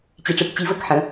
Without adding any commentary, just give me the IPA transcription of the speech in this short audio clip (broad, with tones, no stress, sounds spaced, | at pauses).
t͡ɕ i˨ ʈ͡ʂ ɯ˨ k t͡ɕ i˨˩˦ v ə˨˩˦ k ħ ə̃˩˥